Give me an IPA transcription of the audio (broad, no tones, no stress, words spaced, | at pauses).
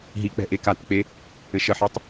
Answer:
ɦik͡pɛ̤ ʔekatk͡pe | ɘʃəħitˤ